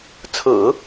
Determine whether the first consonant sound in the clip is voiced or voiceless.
voiceless